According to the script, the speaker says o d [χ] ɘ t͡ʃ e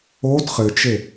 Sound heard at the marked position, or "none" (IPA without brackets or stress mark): χ